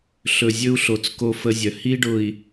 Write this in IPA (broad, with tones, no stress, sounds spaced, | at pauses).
ɬ ɵ˨ zʲ ɵ˦ u̯ ɬ o˨ t͡s k o˦ f ə˦ zʲ œ˨ h i˦ ɖ ʊ˨ i̯